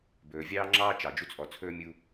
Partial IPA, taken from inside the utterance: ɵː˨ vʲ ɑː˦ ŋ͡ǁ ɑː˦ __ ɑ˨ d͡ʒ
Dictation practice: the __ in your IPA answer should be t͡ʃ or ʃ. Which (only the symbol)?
t͡ʃ